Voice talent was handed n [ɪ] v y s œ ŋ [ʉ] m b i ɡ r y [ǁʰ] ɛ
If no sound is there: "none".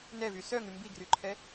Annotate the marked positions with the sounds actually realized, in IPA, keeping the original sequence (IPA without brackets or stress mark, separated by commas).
ɛ, ʉ, ǃʰ